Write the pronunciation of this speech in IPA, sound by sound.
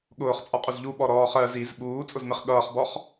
ɠ ʊː χ t͡sʼ ɒ qʼ u z ʎ u ɓ ɔ ɾ ɔː χ ɜ z i z ɓ uː t͡sʼ ʊ z m ɪ χ ɠ ʌː χ b ɔ χ

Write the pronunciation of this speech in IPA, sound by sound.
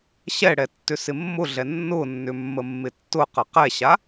ɕ ɛ ɽ ɛ tː ʏ s ɪ mː ʊ ɮ ɛ nː ʊ nː ʏ mː ə mː ɪ tː ʊ q ə q ɛ ɕ a

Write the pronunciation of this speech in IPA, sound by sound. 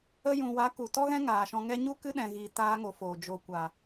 ə˧ j ũ˨ w a˨˦ k u˨ t ɔ˦ ɣ ɛ̃˦ ŋ aː˨ ʃ ɔ̃˧ ŋ ɛ˦ ɲ u˦ k ɨ˦ ɗ ɛ̃˨ ɣ i˧ t aː˦ ŋ o˨˦ f oː˨ d͡ʒ o˨ kʷ a˨

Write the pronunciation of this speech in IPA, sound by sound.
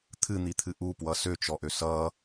t̪ʰ ɨ n̪ i t̪ʰ ɨ ʔ u p w ʌ s ø t͡ʃ ɔ ʔ ø s ʌ

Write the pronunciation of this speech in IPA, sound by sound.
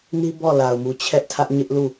n i˦ b ɔ˦˨ l a˨ ʊ̯ m u˨ t͡ɕʰ ɛ˦ ʔ tʰ ä˦ ʔ ɲ ɪ˦ ʔ l u˦˨

